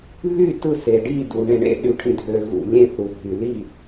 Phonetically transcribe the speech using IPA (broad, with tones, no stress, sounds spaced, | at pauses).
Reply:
β y˥˨ t ɯ˥˨ s e˨ ɖ i˥˨ d u˨ ɳ ẽ˨ ɳ ḛ˥˨ ɗ y˨ ʈʰ ĩ˨ dʱ ø˨ ɣ ṵ˨ lʲ ẽ˥˨ θ u˨ ɦ y˨ l i˥˨